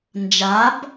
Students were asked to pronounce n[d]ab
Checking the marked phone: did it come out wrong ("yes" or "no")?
yes